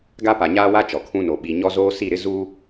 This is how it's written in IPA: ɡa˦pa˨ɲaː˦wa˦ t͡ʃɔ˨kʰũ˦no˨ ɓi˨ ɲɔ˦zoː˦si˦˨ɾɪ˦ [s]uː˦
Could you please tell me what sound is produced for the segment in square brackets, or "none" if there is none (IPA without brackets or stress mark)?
z